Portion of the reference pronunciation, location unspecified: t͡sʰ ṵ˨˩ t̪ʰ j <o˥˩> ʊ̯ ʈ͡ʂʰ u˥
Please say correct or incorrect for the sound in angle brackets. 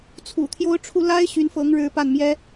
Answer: incorrect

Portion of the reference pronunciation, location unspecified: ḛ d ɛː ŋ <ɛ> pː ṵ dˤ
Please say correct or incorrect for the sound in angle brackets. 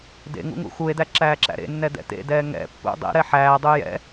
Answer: incorrect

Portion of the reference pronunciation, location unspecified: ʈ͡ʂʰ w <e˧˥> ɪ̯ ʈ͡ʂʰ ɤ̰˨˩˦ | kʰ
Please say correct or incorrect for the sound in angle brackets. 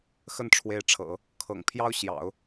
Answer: correct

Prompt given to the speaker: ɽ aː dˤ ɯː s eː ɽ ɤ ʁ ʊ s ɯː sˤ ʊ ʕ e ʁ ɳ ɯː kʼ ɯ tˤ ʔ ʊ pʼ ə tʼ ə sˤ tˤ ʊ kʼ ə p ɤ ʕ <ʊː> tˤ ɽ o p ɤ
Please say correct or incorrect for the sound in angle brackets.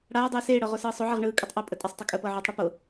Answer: correct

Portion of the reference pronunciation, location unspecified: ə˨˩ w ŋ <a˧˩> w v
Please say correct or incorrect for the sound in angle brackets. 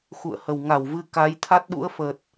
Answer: correct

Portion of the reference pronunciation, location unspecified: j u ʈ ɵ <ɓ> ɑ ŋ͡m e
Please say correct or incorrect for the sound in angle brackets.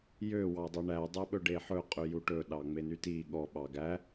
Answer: incorrect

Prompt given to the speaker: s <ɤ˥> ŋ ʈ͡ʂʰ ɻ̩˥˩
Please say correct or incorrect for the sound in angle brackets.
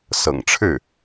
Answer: incorrect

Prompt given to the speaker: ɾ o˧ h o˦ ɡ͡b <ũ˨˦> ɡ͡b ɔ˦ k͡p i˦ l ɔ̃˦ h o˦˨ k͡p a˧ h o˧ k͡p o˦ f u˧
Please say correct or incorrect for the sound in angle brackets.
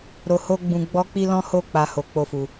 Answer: incorrect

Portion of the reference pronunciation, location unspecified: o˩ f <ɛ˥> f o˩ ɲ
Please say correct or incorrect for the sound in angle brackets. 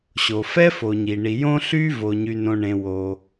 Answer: correct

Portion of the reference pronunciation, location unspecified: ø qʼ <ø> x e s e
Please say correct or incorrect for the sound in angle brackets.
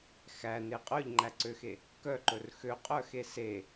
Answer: incorrect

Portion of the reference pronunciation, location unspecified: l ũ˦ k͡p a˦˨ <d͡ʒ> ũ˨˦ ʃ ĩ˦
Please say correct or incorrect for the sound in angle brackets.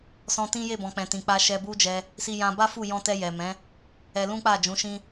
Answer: correct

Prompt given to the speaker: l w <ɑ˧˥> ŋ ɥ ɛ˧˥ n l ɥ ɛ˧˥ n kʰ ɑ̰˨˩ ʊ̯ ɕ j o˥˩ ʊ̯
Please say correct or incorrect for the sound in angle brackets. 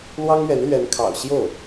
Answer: incorrect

